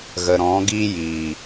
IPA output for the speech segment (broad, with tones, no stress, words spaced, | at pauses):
ɣə˨ɾɔ̃˨˦ɡiː˦ jiː˨